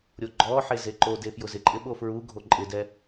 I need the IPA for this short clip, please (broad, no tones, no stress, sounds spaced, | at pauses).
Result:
ɾʲ o ɡ͡ǃ ɔ ħ e z e ǃ o d e f j ʊ z ɪ ǃʼ ɪ ɓ o f ɹ u ɡʱ o ǃʼ ɪ d ɛ